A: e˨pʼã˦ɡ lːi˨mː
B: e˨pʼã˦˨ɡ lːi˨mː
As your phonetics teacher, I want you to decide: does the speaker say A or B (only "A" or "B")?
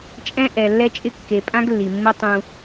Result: A